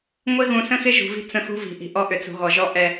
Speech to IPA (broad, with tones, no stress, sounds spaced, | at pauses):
ŋʷ ɪ˦ ɣ ũ˨ s ə̃˦ x ɪ˦ ʒ ṳ˨ v i̤˦ t͡s ə̃˦ x ṳ˦ v i̤˨ ʔ i̤˨ ʔ ɔ˦ ʔ ʏ˨ t͡s ṳ˨ ɣ ɔ˨ ʒ ɔ˦ ʔ ɛ˦